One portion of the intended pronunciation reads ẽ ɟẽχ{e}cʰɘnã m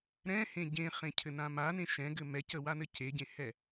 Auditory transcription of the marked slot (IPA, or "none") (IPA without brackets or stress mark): ẽ